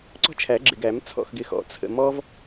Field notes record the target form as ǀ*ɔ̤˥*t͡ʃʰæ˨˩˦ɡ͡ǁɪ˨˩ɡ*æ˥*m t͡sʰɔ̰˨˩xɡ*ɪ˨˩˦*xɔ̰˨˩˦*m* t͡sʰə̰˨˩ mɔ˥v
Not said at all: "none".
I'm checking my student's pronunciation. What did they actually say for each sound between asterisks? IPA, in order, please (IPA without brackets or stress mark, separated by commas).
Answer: ɔ̤˥, æ˨˩˦, ɪ˨˩, none